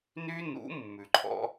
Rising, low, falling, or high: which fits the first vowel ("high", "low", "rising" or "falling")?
high